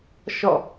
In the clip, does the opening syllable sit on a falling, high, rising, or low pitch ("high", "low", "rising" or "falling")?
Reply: falling